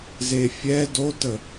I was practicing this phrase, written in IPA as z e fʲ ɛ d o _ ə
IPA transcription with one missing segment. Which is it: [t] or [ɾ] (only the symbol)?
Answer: t